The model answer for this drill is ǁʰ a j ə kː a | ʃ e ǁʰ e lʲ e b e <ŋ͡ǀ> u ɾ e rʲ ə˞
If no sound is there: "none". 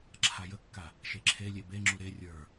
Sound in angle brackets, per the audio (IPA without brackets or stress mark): ŋ͡ǁ